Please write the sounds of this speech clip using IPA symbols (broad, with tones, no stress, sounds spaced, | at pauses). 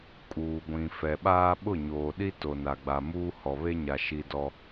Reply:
kʼ uː˨ ɡʷ ĩ˨ f ɛ˨ ɓ aː˦ ɓ ʊ˦˨ ɲ oː˨ ɗ i˦ t o˨ n a˨ ɡ͡b a˨ m uː˦ h ɔ˨ β e˦ ɲ a˨ ʃ i˦ d ɔ˦